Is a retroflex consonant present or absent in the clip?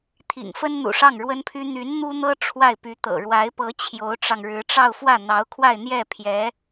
present